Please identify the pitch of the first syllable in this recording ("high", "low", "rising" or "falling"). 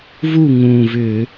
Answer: falling